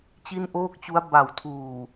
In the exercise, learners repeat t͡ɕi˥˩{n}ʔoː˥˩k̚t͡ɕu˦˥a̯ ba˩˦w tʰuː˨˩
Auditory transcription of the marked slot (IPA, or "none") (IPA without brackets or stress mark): n